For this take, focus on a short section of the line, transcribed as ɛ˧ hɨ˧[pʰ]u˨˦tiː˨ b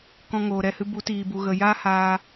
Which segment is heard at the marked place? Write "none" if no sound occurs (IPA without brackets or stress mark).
b